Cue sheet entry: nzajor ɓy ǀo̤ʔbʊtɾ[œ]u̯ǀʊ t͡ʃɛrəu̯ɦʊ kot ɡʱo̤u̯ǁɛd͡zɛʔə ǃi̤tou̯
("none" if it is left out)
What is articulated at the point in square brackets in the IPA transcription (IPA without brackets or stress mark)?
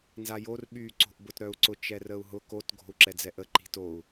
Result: œ